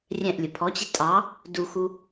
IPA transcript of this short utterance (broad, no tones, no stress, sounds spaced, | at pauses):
rʲ ɛ̃ ʔ lʲ ə pʰ ɔ t͡ɕ ɪ tʼ ɑ | d u x u